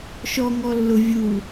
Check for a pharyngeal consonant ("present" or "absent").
absent